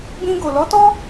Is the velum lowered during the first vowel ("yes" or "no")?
yes